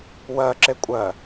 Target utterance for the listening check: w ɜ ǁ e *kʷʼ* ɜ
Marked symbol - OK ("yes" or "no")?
yes